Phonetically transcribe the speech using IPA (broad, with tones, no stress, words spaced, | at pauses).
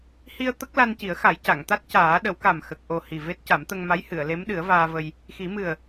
hi˧ə̯ t̪ə˦˥k̚la˧nci˨˩˦ə̯ xa˨˩˦jca˨˩˨ŋt̪a˦˥t̚ caː˨˩˦ɗə˨˩˦wka˨˩m xə˨˩k̚ʔo˨˩ hi˨˩ve˦˥t̚ ca˨˩˦mt̪ə˧ŋma˧˥j hɨ˨˩˨ə̯le˧˥mɗɨ˨˩˦ə̯ vaː˧və˧j | xi˨˩˦mɨ˨˩ə̯